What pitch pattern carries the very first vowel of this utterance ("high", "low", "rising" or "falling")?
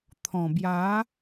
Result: low